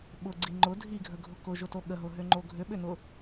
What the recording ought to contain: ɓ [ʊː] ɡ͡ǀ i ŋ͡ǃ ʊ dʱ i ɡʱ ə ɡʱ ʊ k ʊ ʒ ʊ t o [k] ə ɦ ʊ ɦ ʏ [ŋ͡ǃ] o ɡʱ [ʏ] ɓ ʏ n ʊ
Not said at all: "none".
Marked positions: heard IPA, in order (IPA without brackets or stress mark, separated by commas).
ʊ, ɠ, ŋ͡ǃ, ʏ